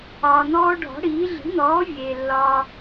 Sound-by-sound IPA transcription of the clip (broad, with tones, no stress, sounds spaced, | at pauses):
ɒː˩ n̪ ɔː˧ ɖʱ ɔ̤˩˥ ɽ iː˩˥ ɮ i̤˩˥ n̪ ɔː˩˥ vʲ eː˩ lː ɒː˧